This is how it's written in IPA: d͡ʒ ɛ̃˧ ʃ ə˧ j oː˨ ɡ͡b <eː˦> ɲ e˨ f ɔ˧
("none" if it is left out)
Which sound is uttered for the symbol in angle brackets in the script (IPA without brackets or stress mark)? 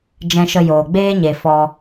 eː˦